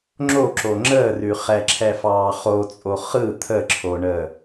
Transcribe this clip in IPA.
ŋ͡ǁ o ǁ o ŋ͡ǁ əː r ʉ χ ɛ ǁʰ ɛ f ɑː χ o t͡sʼ o χ ɯ t̪ʰ ə ǁʰ o ɳ əː

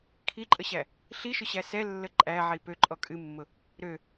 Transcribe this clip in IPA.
kʰ i ǃʼ ə ɕ æ | ɬ i ʃ ʊ ɕ æ s ɛ lː ə ǃʼ æ ʕ i p ø ǃʼ ɔ kʼ ɨ mː ʊ | ɾ ø

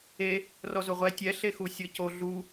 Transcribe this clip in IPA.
e | r ɔ z o ʁʷ ɛ tʲ ɛ ɬ e x u sʲ ɤ c o ɮ u

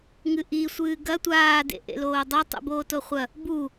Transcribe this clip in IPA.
ŋ ɨ ʔ i sʷ ɨː ɡ ɐ tʷ aː d ḛ ʔ ḛ l oː dˤ a tˤ ṵ b oː t o χʷ ɐ | b u

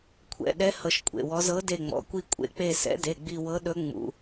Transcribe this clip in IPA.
kʷʰ ɛ̰˩˧˩ ɗ ɛ˧˥ h ɤ˦˨ ʃ kʷʼ ḛ˩˧˩ w ɔ˧˥ z ɤ˧˥ d e˦˨ ŋ͡m ɔ̰˩˧˩ kʷ i˦˨ kʷʼ ḛ˦˨ k͡p e˦˨ s ɛ̰˧˥ d e˩˧˩ ɡ͡b i˦˨ w ɤ˧˥ ɗ ɵ˧˥ ŋ͡m ṵ˩˧˩

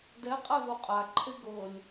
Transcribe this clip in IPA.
d ɛ qʼ a ð u qʼ a ǃʰ e ɡ ɤ lʲ

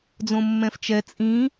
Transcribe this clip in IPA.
d͡z õ mː ɛ̃ f t͡ʃ ɛ t͡sʼ ĩ

